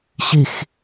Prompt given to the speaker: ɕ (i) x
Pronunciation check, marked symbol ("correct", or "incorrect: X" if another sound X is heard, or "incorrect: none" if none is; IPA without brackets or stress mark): correct